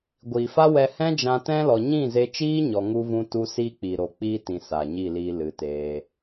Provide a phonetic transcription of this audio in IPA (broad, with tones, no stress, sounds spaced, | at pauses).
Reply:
ɡʷ iː˨ f a˦ w ɛ˧ h ɛ̃˦ d͡ʒ ã˧ t ɛ̃˦ l ɔ˧ ɲ ĩ˦˨ z e˧ t͡ʃ iː˦ ɲ ɔ˧ ŋ u˦ v ũ˦ t u˦ s iː˦ k͡p iː˨ ɾ o˨ k͡p iː˦ t ĩ˨ s aː˨ ɲ i˦˨ l iː˧ l ɨ˨˦ t eː˧